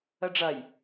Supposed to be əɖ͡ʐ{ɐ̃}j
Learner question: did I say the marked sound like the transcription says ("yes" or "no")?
no